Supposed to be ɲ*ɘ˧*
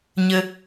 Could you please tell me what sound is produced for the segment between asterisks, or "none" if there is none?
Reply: ɘ˧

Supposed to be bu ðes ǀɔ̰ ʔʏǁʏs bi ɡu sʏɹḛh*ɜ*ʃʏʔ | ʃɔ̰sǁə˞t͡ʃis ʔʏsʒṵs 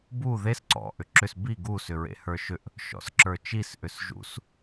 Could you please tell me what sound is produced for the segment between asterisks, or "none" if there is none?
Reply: ə˞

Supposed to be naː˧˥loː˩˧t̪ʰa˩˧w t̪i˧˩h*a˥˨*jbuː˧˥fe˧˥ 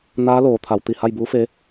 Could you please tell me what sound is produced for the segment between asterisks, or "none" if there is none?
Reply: a˥˨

